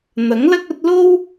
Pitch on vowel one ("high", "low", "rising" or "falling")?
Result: rising